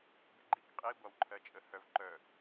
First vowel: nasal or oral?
oral